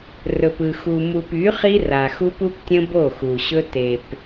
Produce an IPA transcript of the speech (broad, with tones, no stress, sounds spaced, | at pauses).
r ɵ˨ p ɯ˨ x u˨ m u˨ p y˨˦ χ i˦ r a˨ x u˦ p u˦ p tʲ ə̃˦ b o˦˨ x u˨ ɕ ɵ˦ t e˨ p